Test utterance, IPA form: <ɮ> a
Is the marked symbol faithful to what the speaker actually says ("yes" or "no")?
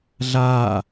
yes